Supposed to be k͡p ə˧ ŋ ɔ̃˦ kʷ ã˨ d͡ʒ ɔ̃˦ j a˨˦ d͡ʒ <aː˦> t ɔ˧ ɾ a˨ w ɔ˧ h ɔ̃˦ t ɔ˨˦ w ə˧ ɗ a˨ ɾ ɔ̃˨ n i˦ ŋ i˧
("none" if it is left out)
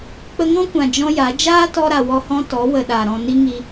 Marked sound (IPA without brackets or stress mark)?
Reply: aː˦